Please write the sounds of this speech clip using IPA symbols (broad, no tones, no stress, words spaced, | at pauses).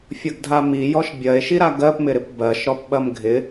fʲɐɡdʱami jɔʃbʲɜe̯ʃiɾa ɡɜpmɪɾɪp bɜʃɾɔpɓɐm ɡʱɪ